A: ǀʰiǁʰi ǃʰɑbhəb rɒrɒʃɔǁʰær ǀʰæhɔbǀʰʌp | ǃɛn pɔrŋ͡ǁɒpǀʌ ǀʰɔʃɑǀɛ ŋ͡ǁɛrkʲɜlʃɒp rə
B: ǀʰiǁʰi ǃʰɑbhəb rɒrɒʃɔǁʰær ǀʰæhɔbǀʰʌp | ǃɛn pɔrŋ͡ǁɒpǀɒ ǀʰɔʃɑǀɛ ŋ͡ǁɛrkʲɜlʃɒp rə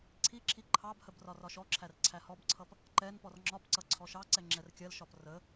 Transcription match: A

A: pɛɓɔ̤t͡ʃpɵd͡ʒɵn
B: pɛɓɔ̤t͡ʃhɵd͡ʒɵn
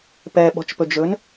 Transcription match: A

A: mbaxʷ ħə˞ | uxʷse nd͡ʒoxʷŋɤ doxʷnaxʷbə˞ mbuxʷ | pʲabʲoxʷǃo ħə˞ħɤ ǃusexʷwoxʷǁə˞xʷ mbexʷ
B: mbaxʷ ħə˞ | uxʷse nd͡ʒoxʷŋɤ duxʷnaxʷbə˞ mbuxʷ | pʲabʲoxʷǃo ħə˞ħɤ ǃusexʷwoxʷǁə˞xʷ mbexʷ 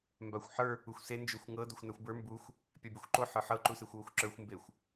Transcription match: A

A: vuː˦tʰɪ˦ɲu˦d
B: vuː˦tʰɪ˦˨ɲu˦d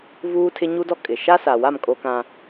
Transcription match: A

